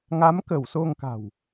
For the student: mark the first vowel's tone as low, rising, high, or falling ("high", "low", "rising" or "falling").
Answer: rising